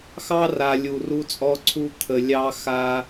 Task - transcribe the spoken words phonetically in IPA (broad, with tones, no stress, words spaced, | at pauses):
xɑ˦ra˨ lʲu˨ru˦t͡sʼɔ˦ǀʰu˦ t̪ʰə˨lʲɑ˦xa˦